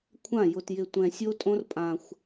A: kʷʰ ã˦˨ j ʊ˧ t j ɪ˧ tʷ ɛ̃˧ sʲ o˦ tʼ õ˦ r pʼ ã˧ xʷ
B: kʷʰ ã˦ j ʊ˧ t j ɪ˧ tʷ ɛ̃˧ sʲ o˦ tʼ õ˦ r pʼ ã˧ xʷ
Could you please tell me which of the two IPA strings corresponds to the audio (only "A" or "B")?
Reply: A